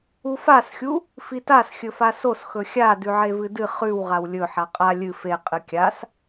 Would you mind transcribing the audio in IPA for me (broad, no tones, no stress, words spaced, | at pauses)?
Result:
ufasxʲu | fitas xʲɵfasos xɵxʲa dʉʕevɨdɨ χʉw ʁawlʲɵ ħaqʼa lʲɨ fe qʼɨkʲas